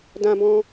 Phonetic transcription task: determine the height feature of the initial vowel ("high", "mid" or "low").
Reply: low